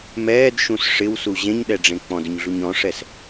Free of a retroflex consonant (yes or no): no